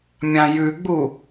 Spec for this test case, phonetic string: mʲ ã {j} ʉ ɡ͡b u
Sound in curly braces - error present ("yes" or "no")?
no